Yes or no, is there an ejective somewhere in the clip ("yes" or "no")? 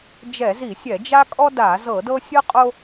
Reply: yes